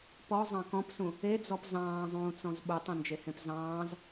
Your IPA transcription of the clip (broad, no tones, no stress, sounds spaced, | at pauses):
p ɔ zˤ ɑ̃ k ɔ̃ p s ũ | e d͡z ɔ p z ɑ̃ː zˤ ũː t͡s ɔ̃ z ɓ u tˤ ẽ n d͡ʒ e h ẽ p z ɑ̃ː z